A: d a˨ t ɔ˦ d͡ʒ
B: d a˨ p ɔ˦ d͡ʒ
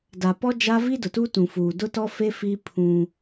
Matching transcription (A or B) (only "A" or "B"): B